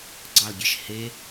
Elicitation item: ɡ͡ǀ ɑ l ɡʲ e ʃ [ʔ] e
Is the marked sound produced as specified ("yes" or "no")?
no